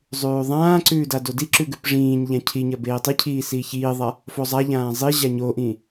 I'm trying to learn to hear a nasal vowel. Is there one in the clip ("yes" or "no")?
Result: yes